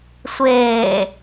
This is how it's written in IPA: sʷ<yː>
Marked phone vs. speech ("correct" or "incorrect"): incorrect